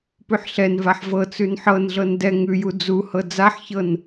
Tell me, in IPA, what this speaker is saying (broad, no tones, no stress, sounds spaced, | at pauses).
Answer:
p ʉ ħ ɬ ɛ n v a ħ v ɤ t͡s ʉ n ħ ɤ n ɮ ɤ n d ɛ ŋ ʉ j u d͡z u h ɤ d͡z a ħ ç ɤ n